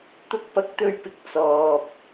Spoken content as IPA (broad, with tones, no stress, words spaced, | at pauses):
t̪ʊ˥k̚ pɐ˧k̚t̪ɵ˧ɥpɪ˨˥k̚ t͡sɔː˨p̚